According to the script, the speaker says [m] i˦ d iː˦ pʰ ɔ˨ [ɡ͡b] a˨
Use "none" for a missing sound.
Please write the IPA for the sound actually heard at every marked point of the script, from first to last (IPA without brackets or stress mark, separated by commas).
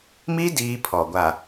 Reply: m, ɡʷ